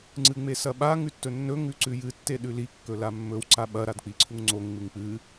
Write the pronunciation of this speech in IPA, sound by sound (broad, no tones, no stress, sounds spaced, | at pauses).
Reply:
ŋ͡ǀ ɨ ŋ͡m e s ɐ ɓ a ŋ ʉ tː ɵ nː ɵ ŋ ʉ ǀ ʉ j ɨ tː e ɗ ʉ l i kː ɵ l a mː ɵ w ǀ a ɓ ɐ ɾ a d k͡p i ǀʰ u ŋ ŋ͡ǀ o ŋ ŋ͡m ɨ ŋ k͡p ɨ